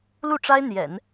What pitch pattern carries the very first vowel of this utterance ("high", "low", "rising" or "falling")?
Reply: falling